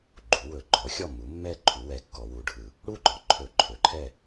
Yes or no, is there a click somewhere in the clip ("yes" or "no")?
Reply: yes